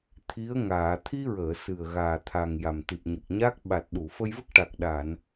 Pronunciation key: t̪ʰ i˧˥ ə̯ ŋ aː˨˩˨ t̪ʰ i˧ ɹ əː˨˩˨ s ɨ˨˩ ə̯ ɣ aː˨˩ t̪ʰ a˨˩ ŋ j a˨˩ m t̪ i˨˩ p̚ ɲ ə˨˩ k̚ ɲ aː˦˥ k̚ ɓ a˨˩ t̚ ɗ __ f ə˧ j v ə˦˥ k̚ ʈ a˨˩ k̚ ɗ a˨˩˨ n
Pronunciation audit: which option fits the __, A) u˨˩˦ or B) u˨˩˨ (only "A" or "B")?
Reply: B